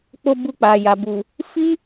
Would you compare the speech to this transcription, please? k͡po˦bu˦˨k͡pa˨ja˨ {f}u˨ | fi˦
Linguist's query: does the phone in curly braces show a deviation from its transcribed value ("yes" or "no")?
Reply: yes